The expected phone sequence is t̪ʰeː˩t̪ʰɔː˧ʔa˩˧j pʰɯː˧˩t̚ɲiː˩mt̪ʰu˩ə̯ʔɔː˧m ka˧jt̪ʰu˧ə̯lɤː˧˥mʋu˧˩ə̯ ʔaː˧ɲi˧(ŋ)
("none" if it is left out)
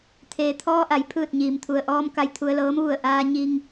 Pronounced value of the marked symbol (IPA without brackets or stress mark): ŋ